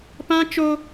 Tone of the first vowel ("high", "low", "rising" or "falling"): high